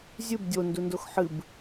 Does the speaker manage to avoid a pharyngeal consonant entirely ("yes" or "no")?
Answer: no